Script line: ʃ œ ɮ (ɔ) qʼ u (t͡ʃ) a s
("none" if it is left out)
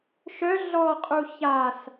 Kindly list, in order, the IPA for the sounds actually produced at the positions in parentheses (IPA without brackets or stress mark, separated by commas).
ɔ, ç